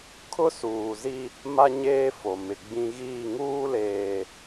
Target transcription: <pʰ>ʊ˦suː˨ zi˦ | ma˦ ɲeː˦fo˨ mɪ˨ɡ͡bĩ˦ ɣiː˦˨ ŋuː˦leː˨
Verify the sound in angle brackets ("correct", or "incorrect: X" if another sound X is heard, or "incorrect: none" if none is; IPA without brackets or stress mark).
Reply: incorrect: kʰ